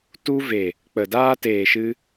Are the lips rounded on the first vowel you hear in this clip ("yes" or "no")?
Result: yes